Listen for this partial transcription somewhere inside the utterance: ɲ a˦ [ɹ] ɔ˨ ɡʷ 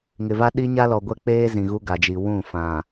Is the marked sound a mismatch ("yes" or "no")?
yes